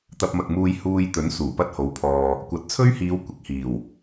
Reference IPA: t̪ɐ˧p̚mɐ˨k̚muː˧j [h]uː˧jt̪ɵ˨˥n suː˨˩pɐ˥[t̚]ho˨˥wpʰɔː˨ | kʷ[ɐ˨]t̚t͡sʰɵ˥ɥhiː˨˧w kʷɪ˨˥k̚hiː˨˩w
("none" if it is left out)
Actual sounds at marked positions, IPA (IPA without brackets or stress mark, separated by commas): h, t̚, ɐ˨˥